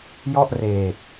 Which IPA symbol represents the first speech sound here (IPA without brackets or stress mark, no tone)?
j